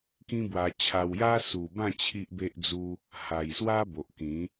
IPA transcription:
k ĩ˦ b w a˧ t͡ɕʰ a˧ w j a˦ s u˨˩ b ã˥˧ t͡ɕʰ i˦ ʔ b e˦ ʔ d͡z u˦ | h a˨˩ j s w a˦ b o˨ ʔ k ĩ˨˦

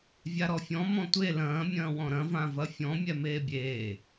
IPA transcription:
vʲ a ɾ ɔ fʲ ɔ̃ m ɔ̃ tʷ e l ɐ̃ː mʲ ɐ̃ː w ɔ̃ ɾ ɐ̃ v ã v ɐ fʲ ɔ̃ mʲ ɛ m eː bʲ eː

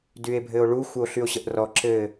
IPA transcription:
d y e̯ bʱ ɘ o̯ ɭ u xʷ ə o̯ ɬ y o̯ ɕ ə ʔ r ɔ ǁ ɘ

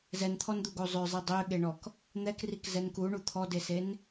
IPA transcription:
z ɛ n t̪ʰ ɔ n d̪ u ɡ o zˤ ø zˤ i dˤ ø ɠ e ɳ ɔ k | n̪ ɛ k r i k z ɛ n k u ɳ u t̪ʰ ɔ d e s e n

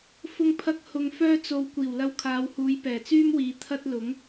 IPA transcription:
f ʊ˧ ŋ pʰ ɐ˧ k̚ h ʊ˧ ŋ f œː˥ t͡s o˧ w kʷ iː˨˩ w l ɐ˧ w kʰ aː˨˧ w h uː˨˧ j p ɛː˨˩ t͡s yː˥ m w iː˨ t̪ʰ ɐ˥ t̚ l ʊ˨˥ ŋ

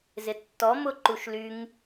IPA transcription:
z ɪ tː ɔ m ʊ ǃ u ʃ l y ŋ

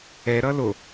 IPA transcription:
ɛ ɾ ʌ l o

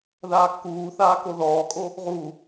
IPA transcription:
ð aː kː uː θ aː k o ð ɔː kʼ o | ʁ u

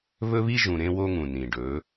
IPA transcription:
β ɵ˦ β i˦ ʒ ũ˨ ɾ ẽ˦ w o˦ ŋ ũ˨ n ĩ˨ ɖ ɵ˨˦

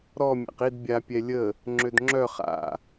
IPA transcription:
ɾ ɔ mʲ a̰ q i d bʲ a pʲ ɛ lʲ ə | ŋ͡ǁ ø d ŋ͡ǁ œ χ a̰

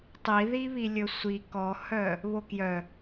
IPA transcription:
tˤ i ð i β i lʲ ɵ sʷ i k ɔ h œ | β o k j œ

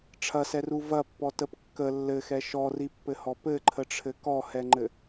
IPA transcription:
ʈ͡ʂʰ ɐ s ɛ r u v ɐ pː ɔ t ə p kː ə lː ɘ x ɛ ʃ ɔ r i pː ɘ h ɔ p ɘ ǃʰ ə ʈ͡ʂʰ ɘ k ɔ h ɛ ŋ͡ǃ ɘ

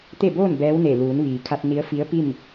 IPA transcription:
t̪ e˥˨ b oː˥˨ n b ɛː˧˥ w n e˧˩ l uː˩˧ n ʋ iː˩ kʰ a˧ t̚ n i˧˥ ə̯ f i˧˥ ə̯ p i˥˨ m

